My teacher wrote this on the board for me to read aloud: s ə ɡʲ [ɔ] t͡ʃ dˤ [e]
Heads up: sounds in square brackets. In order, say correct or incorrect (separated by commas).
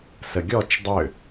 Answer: correct, incorrect